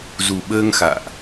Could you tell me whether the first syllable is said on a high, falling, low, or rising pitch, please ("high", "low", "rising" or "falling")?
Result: low